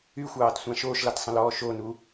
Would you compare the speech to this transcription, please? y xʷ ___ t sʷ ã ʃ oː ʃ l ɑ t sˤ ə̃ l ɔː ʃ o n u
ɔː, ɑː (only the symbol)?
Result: ɑː